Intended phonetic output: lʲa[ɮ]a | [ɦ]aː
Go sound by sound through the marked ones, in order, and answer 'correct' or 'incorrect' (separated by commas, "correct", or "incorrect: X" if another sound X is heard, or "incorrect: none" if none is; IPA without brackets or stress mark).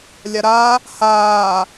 incorrect: ɾ, incorrect: h